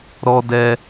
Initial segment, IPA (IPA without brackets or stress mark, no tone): ɾ